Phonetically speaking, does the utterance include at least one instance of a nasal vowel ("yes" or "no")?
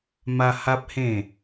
yes